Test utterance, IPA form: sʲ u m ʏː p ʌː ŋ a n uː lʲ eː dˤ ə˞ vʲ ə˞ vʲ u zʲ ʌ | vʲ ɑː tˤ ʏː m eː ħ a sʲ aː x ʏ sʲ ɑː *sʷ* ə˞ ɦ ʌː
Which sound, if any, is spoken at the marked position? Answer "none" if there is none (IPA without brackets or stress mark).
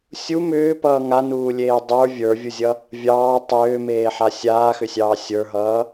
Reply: sʲ